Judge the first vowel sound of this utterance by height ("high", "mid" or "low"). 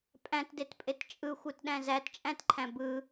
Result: low